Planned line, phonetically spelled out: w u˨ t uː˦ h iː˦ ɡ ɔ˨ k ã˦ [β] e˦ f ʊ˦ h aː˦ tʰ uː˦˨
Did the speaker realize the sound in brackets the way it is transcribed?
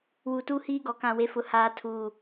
no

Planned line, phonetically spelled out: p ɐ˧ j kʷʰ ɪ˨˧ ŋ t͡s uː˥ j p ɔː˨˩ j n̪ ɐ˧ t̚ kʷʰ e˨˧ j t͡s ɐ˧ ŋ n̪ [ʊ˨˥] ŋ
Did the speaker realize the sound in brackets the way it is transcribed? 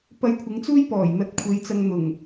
no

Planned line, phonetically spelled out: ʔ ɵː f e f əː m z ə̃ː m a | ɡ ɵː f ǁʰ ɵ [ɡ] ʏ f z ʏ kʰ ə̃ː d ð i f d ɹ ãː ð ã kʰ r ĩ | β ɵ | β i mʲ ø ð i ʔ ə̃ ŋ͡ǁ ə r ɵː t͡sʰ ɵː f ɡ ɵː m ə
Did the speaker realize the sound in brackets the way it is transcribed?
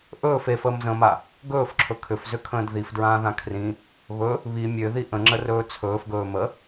no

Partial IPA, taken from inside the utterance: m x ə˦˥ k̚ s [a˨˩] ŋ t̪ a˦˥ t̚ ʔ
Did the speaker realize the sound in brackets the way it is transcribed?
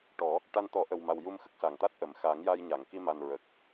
yes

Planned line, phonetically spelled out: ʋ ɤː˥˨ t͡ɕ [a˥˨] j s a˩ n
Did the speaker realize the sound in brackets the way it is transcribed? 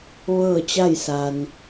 yes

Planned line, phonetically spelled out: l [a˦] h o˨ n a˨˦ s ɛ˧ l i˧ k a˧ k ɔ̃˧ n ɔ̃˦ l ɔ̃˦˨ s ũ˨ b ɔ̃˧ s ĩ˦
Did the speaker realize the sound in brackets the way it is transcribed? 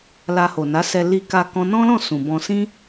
no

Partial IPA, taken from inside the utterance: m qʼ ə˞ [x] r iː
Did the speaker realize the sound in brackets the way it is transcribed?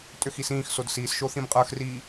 yes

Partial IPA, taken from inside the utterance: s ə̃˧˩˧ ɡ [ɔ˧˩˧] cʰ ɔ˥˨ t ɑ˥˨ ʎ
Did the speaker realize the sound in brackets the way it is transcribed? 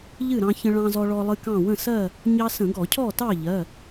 yes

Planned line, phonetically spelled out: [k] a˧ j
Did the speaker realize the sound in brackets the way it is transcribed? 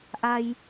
no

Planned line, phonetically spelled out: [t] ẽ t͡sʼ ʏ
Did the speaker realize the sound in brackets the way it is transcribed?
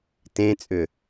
yes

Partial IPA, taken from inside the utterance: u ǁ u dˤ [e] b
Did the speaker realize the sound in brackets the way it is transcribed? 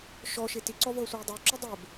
yes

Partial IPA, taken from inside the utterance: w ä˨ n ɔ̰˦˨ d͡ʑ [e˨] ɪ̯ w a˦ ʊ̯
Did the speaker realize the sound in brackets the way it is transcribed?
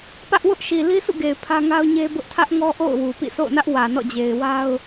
yes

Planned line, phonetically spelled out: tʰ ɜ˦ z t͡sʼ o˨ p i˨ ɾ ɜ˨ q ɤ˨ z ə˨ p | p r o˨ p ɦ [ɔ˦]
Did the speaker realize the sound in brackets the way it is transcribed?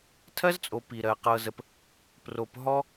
yes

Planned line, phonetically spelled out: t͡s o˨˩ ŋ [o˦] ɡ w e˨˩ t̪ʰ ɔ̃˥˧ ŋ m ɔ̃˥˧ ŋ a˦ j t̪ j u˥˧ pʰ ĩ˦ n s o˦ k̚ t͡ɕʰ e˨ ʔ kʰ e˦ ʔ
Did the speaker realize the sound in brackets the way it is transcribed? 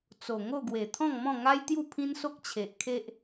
no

